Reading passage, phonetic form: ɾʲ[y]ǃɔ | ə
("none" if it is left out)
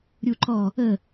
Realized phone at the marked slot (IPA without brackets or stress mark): u